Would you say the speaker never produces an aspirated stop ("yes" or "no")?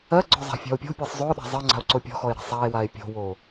yes